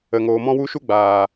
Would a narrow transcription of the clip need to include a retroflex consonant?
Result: no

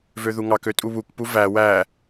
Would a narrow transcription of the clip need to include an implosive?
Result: no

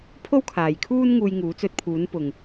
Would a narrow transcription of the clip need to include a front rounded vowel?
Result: no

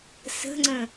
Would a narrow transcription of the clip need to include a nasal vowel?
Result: yes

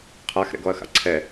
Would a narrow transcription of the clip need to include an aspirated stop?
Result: yes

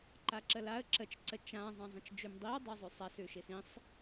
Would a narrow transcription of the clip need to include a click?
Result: yes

